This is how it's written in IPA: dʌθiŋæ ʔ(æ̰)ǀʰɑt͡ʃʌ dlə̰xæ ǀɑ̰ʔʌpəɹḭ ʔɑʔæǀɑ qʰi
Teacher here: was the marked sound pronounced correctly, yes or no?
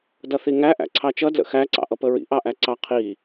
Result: yes